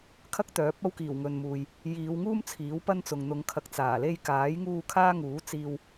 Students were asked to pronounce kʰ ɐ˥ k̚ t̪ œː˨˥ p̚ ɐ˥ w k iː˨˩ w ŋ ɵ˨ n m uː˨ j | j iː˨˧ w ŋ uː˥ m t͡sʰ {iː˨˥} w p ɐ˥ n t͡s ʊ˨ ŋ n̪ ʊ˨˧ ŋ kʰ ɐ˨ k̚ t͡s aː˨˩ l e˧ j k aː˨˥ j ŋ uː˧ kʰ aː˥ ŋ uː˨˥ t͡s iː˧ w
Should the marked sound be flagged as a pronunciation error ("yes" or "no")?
no